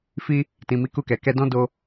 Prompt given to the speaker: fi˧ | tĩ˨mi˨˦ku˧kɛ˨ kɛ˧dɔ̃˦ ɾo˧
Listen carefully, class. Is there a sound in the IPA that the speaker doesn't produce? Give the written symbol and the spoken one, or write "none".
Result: ɾ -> d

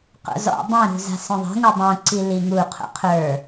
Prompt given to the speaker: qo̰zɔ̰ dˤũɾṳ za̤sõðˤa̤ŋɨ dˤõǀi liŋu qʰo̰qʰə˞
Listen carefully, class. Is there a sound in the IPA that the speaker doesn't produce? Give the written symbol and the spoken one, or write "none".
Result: none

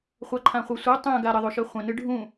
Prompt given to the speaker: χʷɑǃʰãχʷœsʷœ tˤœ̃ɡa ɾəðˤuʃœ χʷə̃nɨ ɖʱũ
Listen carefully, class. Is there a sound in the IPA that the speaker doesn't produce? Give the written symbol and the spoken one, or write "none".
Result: none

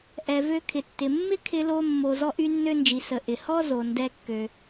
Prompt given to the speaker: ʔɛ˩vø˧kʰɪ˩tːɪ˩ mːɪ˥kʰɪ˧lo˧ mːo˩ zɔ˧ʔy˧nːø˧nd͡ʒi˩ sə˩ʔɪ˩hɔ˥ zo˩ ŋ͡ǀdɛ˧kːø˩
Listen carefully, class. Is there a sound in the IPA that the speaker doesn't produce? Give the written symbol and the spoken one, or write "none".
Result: ŋ͡ǀ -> n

